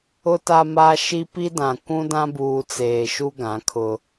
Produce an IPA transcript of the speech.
ʊ˨ t a˨ m a˨ ʃ i˦ p i˦ d ã˨ kʷ ũ˦ d ã˦ b uː˨ t͡s eː˨ ʃ u˦ ɡ ã˨˦ kʰ ʊ˦

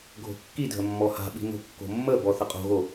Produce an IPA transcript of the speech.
ɡʱ o̤ kː i dʱ ə mː ɔ h a̤ ɓ i̤ n o̤ kː o̤ mː ə b ɔ θ ə qʼ o̤ ɣ o

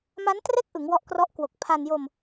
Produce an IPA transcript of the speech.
m a˦˥ n t r e˥˩ k̚ ʔ ɯ˩˦ ŋ w ɔ˦˥ ʔ k r ɔ˦˥ ʔ k w o˨˩ k̚ pʰ a˧ n j o˧ m

